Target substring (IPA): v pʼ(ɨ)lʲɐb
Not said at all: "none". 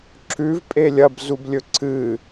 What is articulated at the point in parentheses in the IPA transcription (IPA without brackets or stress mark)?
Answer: e